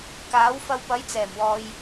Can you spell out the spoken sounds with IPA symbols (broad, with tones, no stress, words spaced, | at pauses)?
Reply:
kaː˨˥wfɐ˧w pɐ˨˥j t͡sɛː˨˩mwɔː˨j